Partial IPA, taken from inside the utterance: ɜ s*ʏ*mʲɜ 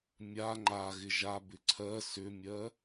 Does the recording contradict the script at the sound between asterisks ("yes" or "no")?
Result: no